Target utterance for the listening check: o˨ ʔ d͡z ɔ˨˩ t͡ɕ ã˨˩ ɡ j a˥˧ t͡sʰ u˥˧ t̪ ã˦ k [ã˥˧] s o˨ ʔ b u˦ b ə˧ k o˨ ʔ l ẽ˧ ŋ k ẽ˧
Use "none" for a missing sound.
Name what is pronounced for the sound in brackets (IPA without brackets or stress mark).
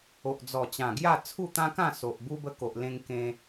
ã˥˧